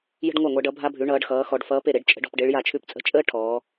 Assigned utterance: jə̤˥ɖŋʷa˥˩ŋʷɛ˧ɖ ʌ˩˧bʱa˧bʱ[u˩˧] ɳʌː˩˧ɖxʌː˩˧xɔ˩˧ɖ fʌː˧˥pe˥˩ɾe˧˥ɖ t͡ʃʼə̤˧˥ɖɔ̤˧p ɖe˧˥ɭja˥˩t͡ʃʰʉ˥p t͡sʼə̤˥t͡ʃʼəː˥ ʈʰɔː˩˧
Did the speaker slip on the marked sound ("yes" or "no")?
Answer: yes